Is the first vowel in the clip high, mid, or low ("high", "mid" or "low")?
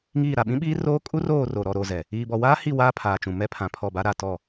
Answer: high